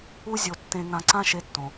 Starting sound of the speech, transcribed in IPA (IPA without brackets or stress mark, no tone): u